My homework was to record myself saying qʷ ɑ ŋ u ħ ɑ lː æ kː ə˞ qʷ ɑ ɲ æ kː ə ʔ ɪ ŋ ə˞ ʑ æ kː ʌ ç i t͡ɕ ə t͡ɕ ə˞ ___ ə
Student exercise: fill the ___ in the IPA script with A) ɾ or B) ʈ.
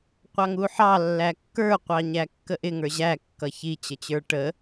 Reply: B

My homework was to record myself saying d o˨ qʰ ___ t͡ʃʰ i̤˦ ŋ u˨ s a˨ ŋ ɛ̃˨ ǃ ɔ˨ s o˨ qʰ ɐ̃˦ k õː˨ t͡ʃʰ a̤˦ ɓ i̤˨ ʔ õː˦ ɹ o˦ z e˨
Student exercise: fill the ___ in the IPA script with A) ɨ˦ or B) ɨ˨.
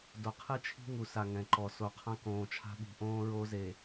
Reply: A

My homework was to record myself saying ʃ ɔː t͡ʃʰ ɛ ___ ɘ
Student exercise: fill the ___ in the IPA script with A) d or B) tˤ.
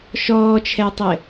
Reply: B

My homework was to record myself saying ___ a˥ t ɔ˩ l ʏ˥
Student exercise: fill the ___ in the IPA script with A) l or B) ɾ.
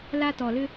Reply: A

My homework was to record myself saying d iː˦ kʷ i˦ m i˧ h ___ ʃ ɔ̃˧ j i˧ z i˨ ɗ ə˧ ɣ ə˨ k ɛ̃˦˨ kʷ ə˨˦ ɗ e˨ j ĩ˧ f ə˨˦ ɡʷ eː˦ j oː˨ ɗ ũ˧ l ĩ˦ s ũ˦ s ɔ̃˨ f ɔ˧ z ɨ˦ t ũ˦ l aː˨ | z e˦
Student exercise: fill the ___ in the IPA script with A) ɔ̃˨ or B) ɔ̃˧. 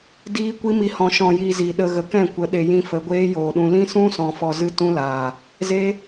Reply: B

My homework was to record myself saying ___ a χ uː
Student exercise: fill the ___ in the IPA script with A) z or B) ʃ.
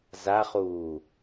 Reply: A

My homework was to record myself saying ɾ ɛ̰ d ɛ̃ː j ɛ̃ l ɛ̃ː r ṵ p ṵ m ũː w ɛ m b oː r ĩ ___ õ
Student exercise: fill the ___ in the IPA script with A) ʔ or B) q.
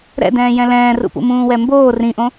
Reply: A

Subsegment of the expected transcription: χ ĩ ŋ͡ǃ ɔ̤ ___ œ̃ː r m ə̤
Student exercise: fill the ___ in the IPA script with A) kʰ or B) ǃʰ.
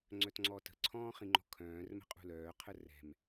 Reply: A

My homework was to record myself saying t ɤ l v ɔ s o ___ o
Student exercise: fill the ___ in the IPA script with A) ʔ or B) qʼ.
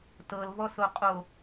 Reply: B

